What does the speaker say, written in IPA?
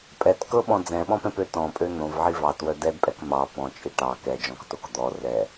pʼ ɛ t k ɤ ɓ ɔ̃ d͡z ɛ̃ ɓ ɔ̃ p ɛ̃ p ø t ɔ̃ pʼ ø n̪ õ v ʕ i v ɑ t w œ d ɛ d pʼ ɛ k m ɑ p ɔ̃ t͡ʃʼ i ʈ ɑ k ɛ d͡ʒ ɔ̃ k t o k d̪ ɔ r ɛ

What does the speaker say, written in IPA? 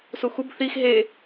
s u x u b θ i x ɦ e

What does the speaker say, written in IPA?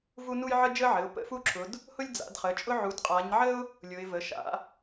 v u˥ n u˥ j ʕ ə˥ d͡ʒ ə˥ ʕ ɘ˩˧˩ ʊ̯ p ə̰˥ f u˥ ǁʰ ʊ˨˦ d | h ʊ˥ lʲ d͡z a̰˨˦ d χ ə˩˧˩ t͡ʃʼ ʊ˥ ʕ u˨˦ d qʼ a˨˦ ɲ ʕ ə˥ ʊ̯ | lʲ ʊ˨˦ ɪ̯ v ə˩˧˩ ʃ a̰˨˦

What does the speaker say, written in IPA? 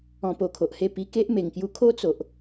ɔ̃˧ p o˧ kʰ o˨ ʔ h e˥˧ p i˧ k e˦ ʔ m e˨˩ ŋ k j u˧ kʰ o˦ t͡s o˨ ʔ

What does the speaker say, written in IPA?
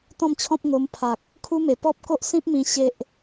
t̪ ɔ̃˥˧ m t͡ɕʰ ɔ̃˦ p̚ ŋ o˧ m pʰ a˨ k̚ | kʰ u˦ m e˨˩ p ɔ˦ p̚ k o˦ ʔ s ĩ˦ p̚ m ĩ˧ ɕ e˦ ʔ

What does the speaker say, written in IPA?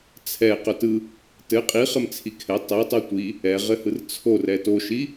t͡sʰ ɛ q œ t ɯ | t ɘ qʼ i χ ɘ m t͡sʰ i kʰ ɛ tˤ ɛ tˤ o tʷ i | ɛ ʁ ɘ h ɯ r t͡sʰ o r ɛ t o ʃ i

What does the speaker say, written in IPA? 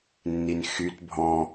nː i n x y t bʱ ɔ̃

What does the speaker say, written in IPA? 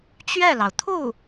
t͡ɕ ɥ ɛ˥˩ l ɑ˩ ʊ̯ t̪ʰ u˥˩

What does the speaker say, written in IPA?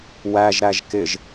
w æ ʒ ɾ æ ʒ k ɪ ʒ

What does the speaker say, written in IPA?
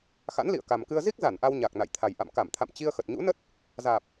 x a̰˧˥ n l ḭ˧˨ ə̯ k a˨˩ m k ɨ˧ ə̯ z i˦˥ k̚ z a˧˩ n ʔ a˧ w ɲ a˨˩ k̚ n a̰˧˨ j t̪ʰ a˨˩ j ʔ a̰˧˨ m k a˧˩ m t̪ʰ a̰˧˨ m t͡ɕ i˧ ə̯ x ə˨˩ t̚ ɲ ṵ˧˥ n ə˦˥ t̚ | z aː˨˩ p̚

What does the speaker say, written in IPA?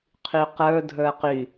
qʰ y q ə˞ dʱ ə˞ q y

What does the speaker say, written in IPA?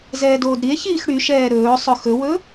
z ɛː d oː d ɾ i e̯ ç iː x ɽ y ʃ ɛː ɾ ɵː sˤ ɵ x ɵ w ɵ

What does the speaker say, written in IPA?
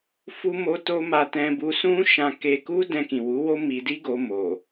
f u˧ m o˧ t o˧ m a˧ t ɛ̃˧ b u˧ s ũ˦ ʃ ã˧ k e˧ k u˦ d ɛ̃˧ k ĩ˨ w u˨˦ w o˦ m i˧ d i˦ ɡ o˧ m o˨

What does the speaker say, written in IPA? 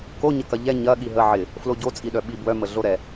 k o ɲ ə k ɐ ʎ ɛ ɲ ɐ ɠ i ɦ ə ʕ ɪ | f l o ɟ o t͡sʼ i ɗ œ ɓ i b w œ m ə ɮ o ɾ ɛ

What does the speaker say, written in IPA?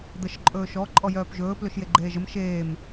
d̪ ə ʃ ǃʼ ɵː ʃ ɔ ǃʼ ɔ j œː p ʒ ɵː p l ɵ ʃ j e ɡ͡ǃ eː ʒ ə m ʃ eː m

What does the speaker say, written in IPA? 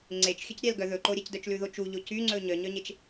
ŋ͡ǀ e t͡ʃ xʲ ɵ c ɾʲ æ l ɡ œ ð ɵ ǃ o ɾʲ ɛ c d œ t͡ʃ l ʉ ð o t͡ʃ u ʎ o c y ŋ͡ǀ ɵ ɲ œ ɲ œ ɲ e t͡ʃ

